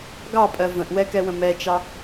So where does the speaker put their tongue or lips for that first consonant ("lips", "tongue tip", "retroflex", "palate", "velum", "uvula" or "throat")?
velum